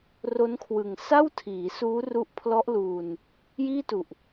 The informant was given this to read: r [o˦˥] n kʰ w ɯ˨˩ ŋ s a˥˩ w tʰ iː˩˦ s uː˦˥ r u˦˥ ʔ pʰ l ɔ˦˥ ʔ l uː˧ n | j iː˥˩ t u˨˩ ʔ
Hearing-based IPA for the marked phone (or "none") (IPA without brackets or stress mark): o˦˥